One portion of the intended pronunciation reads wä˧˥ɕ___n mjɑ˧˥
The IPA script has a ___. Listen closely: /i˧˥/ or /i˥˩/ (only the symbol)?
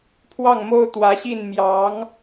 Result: i˥˩